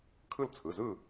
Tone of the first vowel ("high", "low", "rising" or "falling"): falling